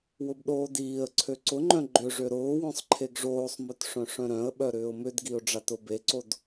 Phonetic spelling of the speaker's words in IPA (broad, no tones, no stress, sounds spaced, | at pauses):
w ʊ b ɗ oː d iː ə̯ ǀʰ ø ǀ ʊ ŋ͡ǃ œ̃ ɡ͡ǃ ʏ ʐ ø ɾ ʊː w œ̃ sˤ ǃʰ e ɡ ʐ oː sˤ m ø t ʂ œ̃ ʂ œ̃ ɾ œ̃ ə̯ ɓ œ ɾ ʏː ʊ̯ m ʏ d ɡ i ʊ̯ ɖ͡ʐ a t ʊ b e ǀ o d